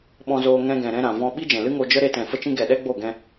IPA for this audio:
ɓ ɔ̃˧ z oː˧ ŋ ɛ̃˧ ɡ ɛ̃˨ ɾ ɛ̃˧ ɾ ã˨ v ɔ̃˦ ɓ i˦ d͡ʒ ɛ̃˨ l ɨ˦ ŋ o˧ d͡ʒ ə˦ ɾ e˧ t ɛ̃˨ f ə˧ t͡ʃ ĩ˧ ɡ ɛ˨ ɗ ɛ˦ ɡ͡b o˦˨ ɡ ɛ̃˧

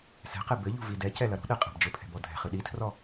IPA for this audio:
s ɛ̤ q ɛ b ɘ ʎ ṳ v i d ɛ c ɛ l ɐ ɾ ṳ ɗ ɛ qʼ ɛ̤ b d͡ʒ ɘ pʰ ɛ̤ b ɔ dʱ ɛ̤ χ ɨ ɗ i tʰ r ɔ

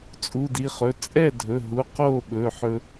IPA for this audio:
t͡sʼ u˩˧˩ d i˩˧˩ χ ɵ˩˧˩ t͡sʼ ɛ˥˩ dʱ ɵ˩˧˩ ɦ u˩˧˩ q o˥˩ ɓ ɵ˩˧˩ ħ ɵ˧

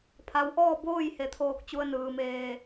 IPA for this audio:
pʰ a˩˧ w ʔ ɔː˥˨ b oː˥˨ j h e˧˩ t̪ʰ oː˧ k̚ t͡ɕ u˧ ə̯ n ɯː˩ m eː˧˩

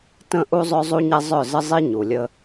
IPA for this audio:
t ə̃˦˨ ʔ u˦ zˤ œ˦ zˤ u˦ ɲ ɛ˦ zˤ œ˦˨ z ə˦ zˤ i˦ ɲ u˨ lʲ ə˦

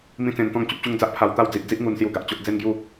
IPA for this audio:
m ĩ˦ t͡s ẽ˧ n t̪ ɔ̃˥˧ ŋ t͡ɕ u˦ p̚ t͡ɕ u˦ ŋ d͡z a˦ ʔ pʰ a˧ w t̪ a˥˧ w d͡z i˨ ʔ d͡z i˦ ʔ ŋ u˧ n s j u˧ ɡ a˨ ʔ t͡ɕ o˦ ʔ d͡z e˦ n ɡ j u˥˧

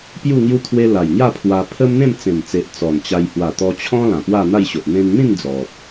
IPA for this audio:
p j u˥˧ ŋ j u˦ t̪ʰ w e˧ l a˨˩ j ŋ j a˥˧ pʰ w a˧ pʰ ə˦ m n̪ ẽ˥˧ m t͡s ẽ˨˩ m t͡s e˨ ʔ t͡s ɔ˨˩ n t͡ɕ a˧ j h w a˨˩ t̪ ɔ˧ t͡ɕʰ ɔ̃˦ l ã˨˩ p w a˥˧ n̪ a˥˧ j ɕ o˨ ʔ n̪ ẽ˧ n n̪ ĩ˥˧ n d͡z ɔ˨ p̚

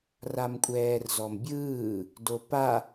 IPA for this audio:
r a m kʷʼ ɛː r z ɔ m bʲ ɯː | d o p a

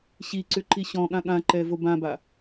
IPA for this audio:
ɕ i ǀ ʏ ǃ i ɕ ɔ̃ ɠ ã ɠ ã ǃ ɛ v o b ã b a

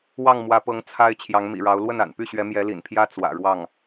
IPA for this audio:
w ɑ˥˩ ŋ m w ä˧˥ p ɤ˧˥ ŋ t͡sʰ a˥ ɪ̯ t͡ɕʰ j ɑ˧˥ ŋ m ḭ˨˩ ɻ ɑ˧˥ ʊ̯ l w ə˥˩ n a̰˨˩ n p y˥˩ ɕ ɥ ɛ˧˥ m j ɛ˧˥ l ḭ˨˩ n pʰ j ä˥ t͡s w ä̰˨˩ ɻ w ɑ˥˩ ŋ

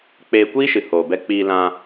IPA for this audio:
k͡p eː˧ kʷ iː˦ ʃ ɨ˨ h oː˨ b ɛ˧ k͡p iː˧ l ã˧

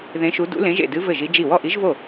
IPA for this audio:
ð ẽ˧˥ ʃ u˧˥ d ṵ˧˥ l ẽ˧˥ ʒ ḛ˥˩ d ɨ˧˥ v ɘ˥˩ ʒ i˧˥ d͡ʒ i˥˩ w ɔ˥˩ ʔ i˧˥ ʒ v o˥˩

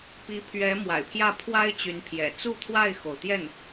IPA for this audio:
p i˧˥ pʰ ɥ ɛ˧˥ m w a̰˨˩ ɪ̯ pʰ j ä˥˩ pʰ w a˥ ɪ̯ t͡ɕ y˧˥ n pʰ j ɛ̰˨˩ t͡s u˥˧ t̪ʰ w a˥˩ ɪ̯ x o˩ ʊ̯ t̪ j ɛ˥˩ n

